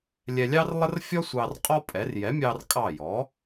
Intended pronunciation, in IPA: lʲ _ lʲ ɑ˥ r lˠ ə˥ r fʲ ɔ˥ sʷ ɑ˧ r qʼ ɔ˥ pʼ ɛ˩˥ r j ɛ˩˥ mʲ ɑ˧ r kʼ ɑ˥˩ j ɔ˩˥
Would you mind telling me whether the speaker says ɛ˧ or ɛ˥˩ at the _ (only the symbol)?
ɛ˧